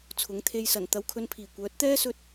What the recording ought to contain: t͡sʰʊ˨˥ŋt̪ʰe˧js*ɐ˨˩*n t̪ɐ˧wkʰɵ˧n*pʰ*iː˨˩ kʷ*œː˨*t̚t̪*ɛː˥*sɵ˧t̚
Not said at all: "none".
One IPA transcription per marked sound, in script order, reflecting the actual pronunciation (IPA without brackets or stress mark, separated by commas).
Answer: ɐ˨˩, pʰ, œː˨˥, ɛː˥